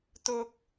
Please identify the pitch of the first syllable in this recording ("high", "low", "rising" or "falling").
high